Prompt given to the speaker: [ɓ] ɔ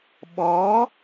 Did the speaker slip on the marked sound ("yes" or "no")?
no